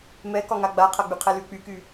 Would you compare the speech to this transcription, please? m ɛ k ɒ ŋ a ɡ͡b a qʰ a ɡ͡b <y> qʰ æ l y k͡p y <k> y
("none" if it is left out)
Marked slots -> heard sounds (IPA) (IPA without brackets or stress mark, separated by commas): y, k